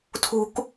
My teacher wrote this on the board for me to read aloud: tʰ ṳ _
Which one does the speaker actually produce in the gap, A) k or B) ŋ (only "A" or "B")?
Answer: A